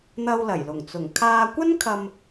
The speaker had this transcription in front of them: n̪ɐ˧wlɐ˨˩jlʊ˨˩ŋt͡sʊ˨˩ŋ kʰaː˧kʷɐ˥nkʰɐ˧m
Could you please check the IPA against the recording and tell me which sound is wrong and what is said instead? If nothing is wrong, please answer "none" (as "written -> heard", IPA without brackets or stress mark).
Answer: none